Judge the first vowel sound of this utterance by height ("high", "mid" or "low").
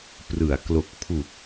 high